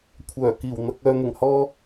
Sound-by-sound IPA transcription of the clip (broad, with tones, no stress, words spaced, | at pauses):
kʷʰœː˨˩kiː˨˩w n̪ɐ˨k̚œː˨n̪ɪ˨˩ŋhɔː˧